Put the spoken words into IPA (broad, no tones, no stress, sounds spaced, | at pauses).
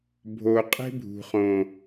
bʱ o qʼ e̤ bʱ ṳ χ õ